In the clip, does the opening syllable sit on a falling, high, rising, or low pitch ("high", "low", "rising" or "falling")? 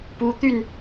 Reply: rising